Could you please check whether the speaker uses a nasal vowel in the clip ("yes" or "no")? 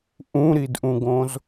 yes